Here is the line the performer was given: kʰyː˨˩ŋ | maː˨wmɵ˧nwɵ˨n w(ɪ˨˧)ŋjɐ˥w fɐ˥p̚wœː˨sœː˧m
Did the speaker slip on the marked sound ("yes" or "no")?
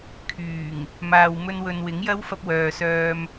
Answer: yes